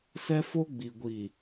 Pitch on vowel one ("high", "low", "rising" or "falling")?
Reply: high